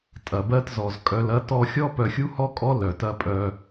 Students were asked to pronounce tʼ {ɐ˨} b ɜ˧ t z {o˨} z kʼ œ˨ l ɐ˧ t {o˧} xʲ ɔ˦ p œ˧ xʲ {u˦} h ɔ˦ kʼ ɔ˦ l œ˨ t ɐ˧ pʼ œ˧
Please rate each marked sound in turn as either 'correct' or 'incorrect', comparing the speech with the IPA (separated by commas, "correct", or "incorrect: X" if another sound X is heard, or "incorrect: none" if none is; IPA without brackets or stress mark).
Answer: correct, incorrect: ɔ˨, incorrect: ɔ˧, correct